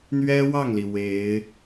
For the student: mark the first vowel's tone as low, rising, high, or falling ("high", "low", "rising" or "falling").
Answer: high